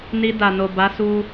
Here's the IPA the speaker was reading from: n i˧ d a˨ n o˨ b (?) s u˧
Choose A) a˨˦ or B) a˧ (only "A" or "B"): A